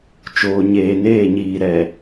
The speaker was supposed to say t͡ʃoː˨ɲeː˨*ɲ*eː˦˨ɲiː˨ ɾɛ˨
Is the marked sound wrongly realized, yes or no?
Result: yes